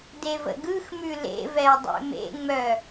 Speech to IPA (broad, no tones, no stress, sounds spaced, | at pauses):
d e v ə̰ ɡ ɯ x m ʉ l ḛ v ɛ ʊ̯ dˤ ḛ m ḛ ŋ͡m œ